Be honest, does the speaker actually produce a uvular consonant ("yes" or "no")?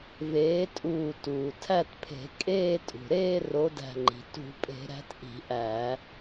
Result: no